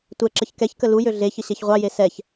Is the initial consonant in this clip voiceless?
yes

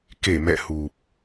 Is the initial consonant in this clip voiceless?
yes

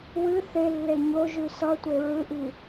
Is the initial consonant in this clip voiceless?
no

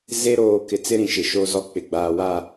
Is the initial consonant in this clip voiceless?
no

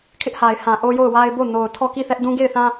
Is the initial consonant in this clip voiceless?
yes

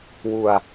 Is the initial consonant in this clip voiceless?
no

